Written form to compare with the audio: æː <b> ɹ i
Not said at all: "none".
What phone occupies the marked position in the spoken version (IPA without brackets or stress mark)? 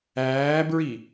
b